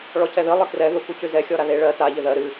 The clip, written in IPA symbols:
ɭ ɔ cʰ ɛ ð ɨ lˠ ɨ k r ɛ ð u k u c ʉ z ɛ xʲ ɔ ɾ a ð e ɭ ɜ t a ʎ ɪ ð ɜ ɾ ɨ

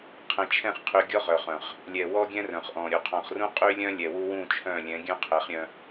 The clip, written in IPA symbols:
qʰ ɛ̃˨ t͡ʃʰ ɛ̃˦˨ χ qʰ y˨ ɡʲ ɔ˦ ʁ œ˨ χ œ̃˨ χ | lʲ ɛ˨ w ɔ˦ ɡʲ ɛ̃˦ r œ̃˨ χ ʔ ɔ̃˨ ɾʲ u˨ qʰ ɔ̃˨ χ r ũ˦ qʼ y˦ lʲ œ̃˦ lʲ ɛ˨ w u˦ w ũ˦˨ t͡ʃʰ œ̃˦˨ lʲ ɛ̃˨˦ ɡʲ œ̃˦ qʰ ɛ˨˦ χ ɾʲ œ̃˦

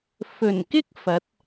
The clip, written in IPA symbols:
f ɵ˨˩ n k ɪ˥ k̚ f ɐ˨˥ t̚

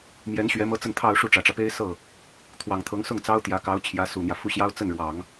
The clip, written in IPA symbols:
m j ɛ˧˥ n ɕ ɥ ɛ˧˥ m ɤ˥ t͡s ə˥˧ n t̪ʰ ɑ˥˧ ʊ̯ ʂ u˥˩ ʈ͡ʂ ä˨˩ ʈ͡ʂ ä˦ p e˥ ɪ̯ s ɤ˥˩ | t̪ʰ w ɑ˨˩ ŋ t̪ʰ ɤ˧˥ ŋ s ʊ˥˩ ŋ t͡s ɑ˥ ʊ̯ t̪ j ä˧˥ k ɑ˧˥ ʊ̯ t͡ɕʰ j ä˧˥ s u˨˩ n̪ j ä˦ f u˥˩ ɕ j ɑ˥ ʊ̯ t͡s ə˥˩ n ɻ w ɑ˨˩˦ ŋ

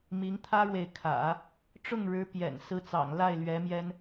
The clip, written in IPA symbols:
m i˧˥ ŋ t̪ʰ ä˥ ɻ w e˨ ɪ̯ kʰ ä̰˨˩˦ | ʈ͡ʂ ʊ˥˩ ŋ ɻ ɻ̩˧˥ p j ɛ̰˨˩ n s ɹ̩˧˥ t͡s ɑ̰˨˩ ŋ l a˥˩ ɪ̯ l ɥ ɛ˧˥ m j ɛ˥ n

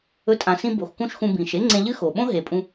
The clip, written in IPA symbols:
ɵ˨˦ tʼ ã˨ s ĩ˧ b o˨ x k ũ˦ ʃ x ũ˧ b ĩ˨ ʃ e˦ ŋ͡ǀ ẽ˧ ʎ ɨ˦ x o˨ ɓ õ˦ ɦ e˨ pʼ ũ˧

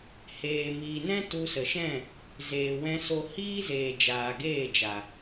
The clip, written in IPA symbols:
h eː˨ m iː˨ n ɛ̃˦ t u˧ s ə˨ ʃ ɛ̃˦˨ | z eː˨ w ɛ̃˧ s o˧ h iː˦ z eː˨ d͡ʒ aː˨ ɡ eː˦˨ d͡ʒ a˨

